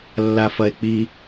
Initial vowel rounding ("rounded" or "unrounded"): unrounded